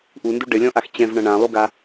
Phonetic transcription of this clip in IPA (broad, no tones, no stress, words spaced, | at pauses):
ʔundu ɖɘlʲɔ̃ʔax t͡ɕɛ̃vɳɐ̃ ɳãlˠuɡa